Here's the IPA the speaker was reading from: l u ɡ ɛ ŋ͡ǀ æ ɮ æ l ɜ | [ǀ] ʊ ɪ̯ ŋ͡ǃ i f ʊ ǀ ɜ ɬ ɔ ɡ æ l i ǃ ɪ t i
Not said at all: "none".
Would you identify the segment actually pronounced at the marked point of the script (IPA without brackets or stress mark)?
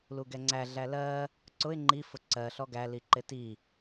ǀ